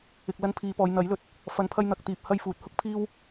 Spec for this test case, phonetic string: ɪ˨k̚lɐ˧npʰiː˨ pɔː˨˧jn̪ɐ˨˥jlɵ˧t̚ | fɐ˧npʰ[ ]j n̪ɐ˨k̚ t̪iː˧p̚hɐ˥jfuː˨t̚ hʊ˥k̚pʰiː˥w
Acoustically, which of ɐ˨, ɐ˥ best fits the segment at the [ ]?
ɐ˥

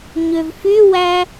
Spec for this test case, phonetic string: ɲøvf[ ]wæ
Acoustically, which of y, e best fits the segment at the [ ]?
y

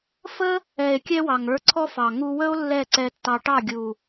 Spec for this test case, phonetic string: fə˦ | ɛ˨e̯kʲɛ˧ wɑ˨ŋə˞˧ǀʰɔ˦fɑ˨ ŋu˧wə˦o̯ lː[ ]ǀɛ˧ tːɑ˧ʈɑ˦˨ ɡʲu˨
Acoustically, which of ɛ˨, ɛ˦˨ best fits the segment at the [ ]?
ɛ˦˨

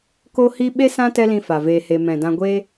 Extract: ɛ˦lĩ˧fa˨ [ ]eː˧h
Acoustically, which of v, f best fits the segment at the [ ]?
v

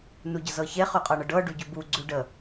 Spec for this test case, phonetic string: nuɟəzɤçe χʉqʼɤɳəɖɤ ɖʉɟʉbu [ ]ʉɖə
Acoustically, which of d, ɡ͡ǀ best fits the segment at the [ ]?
ɡ͡ǀ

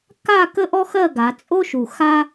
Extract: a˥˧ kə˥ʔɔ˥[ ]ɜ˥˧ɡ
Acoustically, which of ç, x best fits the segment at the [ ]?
x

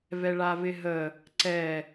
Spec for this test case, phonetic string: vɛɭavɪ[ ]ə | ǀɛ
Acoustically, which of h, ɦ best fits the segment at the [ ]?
ɦ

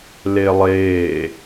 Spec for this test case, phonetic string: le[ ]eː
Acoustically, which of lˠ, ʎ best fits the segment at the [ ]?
lˠ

